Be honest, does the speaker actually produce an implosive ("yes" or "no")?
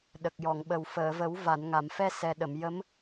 yes